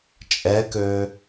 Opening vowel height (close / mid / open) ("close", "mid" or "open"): mid